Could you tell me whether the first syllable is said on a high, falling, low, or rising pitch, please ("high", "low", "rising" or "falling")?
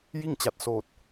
falling